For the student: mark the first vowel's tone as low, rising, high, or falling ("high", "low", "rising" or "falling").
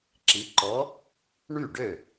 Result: rising